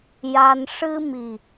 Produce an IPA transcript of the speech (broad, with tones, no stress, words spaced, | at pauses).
ja˧n ʂɨ˧mi˨˩